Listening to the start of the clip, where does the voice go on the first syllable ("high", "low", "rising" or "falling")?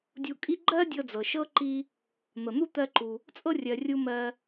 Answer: low